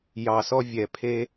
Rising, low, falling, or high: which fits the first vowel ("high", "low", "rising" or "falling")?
low